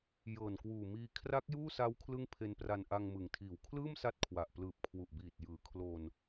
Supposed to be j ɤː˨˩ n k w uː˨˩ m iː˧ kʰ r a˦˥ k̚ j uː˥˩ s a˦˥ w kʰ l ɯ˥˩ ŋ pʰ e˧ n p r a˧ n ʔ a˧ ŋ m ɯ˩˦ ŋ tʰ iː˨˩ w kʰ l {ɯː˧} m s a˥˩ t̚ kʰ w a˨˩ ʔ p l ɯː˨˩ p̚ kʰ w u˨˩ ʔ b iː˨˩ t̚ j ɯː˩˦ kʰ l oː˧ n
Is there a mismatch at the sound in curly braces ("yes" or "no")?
yes